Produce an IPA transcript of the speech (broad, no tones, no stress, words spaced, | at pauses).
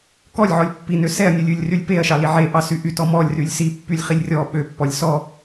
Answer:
kɔlʲʕɔlʲ pːinø sɛɐ̯nʲʉlʲʉlʲrylʲ peɐ̯ʃɑli ʕeʔɑsy ʔytɔ mɔlʲrylʲ sipːylʲχilʲ rʲɔ ɓøpːɔlʲ sɔ